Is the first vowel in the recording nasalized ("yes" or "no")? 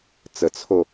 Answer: no